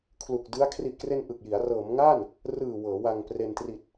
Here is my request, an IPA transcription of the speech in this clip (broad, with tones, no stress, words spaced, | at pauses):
kʰlu˨˩k̚dɯ˦˥a̯ kʰri˨˩ʔkre˧n ʔɯ˨˩k̚ji˩˦a̯ rɤː˩˦mŋa˥˩n | rɯː˨˩ wɤː˩˦wa˧ŋpre˧n tri˨˩t̚